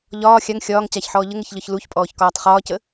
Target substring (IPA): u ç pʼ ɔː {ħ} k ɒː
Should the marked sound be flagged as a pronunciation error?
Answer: yes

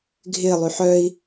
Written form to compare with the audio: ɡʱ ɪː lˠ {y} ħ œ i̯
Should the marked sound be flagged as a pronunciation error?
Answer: no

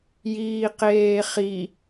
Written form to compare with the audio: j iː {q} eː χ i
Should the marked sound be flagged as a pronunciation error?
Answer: no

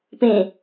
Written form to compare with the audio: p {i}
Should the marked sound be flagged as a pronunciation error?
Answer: yes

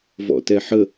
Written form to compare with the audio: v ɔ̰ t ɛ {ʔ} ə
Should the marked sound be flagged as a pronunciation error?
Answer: yes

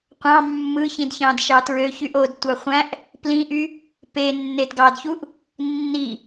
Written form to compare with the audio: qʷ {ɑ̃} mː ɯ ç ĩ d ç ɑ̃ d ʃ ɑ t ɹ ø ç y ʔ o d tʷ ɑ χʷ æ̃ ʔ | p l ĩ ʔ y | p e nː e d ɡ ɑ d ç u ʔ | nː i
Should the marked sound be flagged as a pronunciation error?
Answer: no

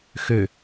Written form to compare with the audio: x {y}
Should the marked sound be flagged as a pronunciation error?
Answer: yes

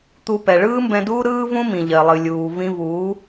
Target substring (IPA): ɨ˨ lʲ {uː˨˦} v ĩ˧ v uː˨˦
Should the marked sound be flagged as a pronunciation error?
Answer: yes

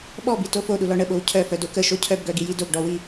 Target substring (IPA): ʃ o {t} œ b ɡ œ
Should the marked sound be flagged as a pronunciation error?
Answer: yes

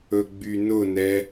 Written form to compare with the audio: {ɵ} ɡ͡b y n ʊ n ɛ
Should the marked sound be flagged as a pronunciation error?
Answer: no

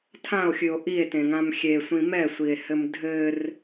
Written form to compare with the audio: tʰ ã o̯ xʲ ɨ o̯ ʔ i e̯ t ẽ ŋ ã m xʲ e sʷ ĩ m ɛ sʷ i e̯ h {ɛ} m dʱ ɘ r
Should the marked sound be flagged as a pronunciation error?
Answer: yes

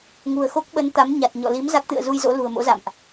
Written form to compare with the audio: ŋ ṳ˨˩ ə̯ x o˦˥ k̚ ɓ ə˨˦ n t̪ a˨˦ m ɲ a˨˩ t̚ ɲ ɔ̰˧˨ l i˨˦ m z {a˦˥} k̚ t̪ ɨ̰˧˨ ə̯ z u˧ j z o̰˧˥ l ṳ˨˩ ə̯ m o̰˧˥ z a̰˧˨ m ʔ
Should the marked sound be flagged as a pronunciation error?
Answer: no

